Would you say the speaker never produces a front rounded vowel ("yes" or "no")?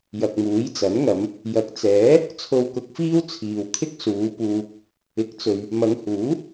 yes